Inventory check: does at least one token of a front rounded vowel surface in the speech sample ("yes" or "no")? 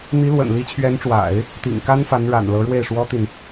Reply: no